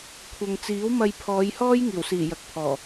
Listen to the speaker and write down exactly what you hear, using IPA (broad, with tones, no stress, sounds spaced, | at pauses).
kʷʰ ɐ˨ ŋ t͡s iː˨˥ w m ɐ˧ j pʰ ɔː˨˧ j h ɔː˥ j ŋ iː˨˩ w s iː˨˩ j ɐ˨ k̚ pʰ ɔː˨˩